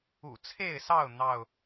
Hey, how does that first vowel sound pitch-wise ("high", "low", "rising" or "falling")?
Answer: low